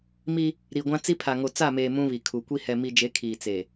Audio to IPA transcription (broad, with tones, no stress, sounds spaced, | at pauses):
m i˦ | ɾ i˨ ɡʷ ã˦ t͡s i˦ pʰ a˨ ŋ o˨ t͡s a˦˨ m eː˨ m ũ˦ β i˨ kʰ u˨ kʷ i˦ h ɛ˨ m i˨ d͡ʒ e˨˦ kʰ iː˨ t͡s e˨